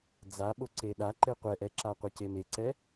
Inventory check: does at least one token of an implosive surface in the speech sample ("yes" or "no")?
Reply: yes